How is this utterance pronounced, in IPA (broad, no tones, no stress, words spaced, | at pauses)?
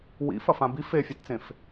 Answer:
wḭfɐ fãbi fefʲatt͡sẽf